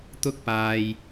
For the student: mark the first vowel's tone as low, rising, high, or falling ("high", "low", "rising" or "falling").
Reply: high